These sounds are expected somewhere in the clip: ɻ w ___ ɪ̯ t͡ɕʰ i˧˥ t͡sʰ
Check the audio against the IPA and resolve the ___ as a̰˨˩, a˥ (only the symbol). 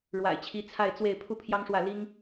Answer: a̰˨˩